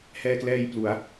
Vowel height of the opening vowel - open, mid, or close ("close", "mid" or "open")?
mid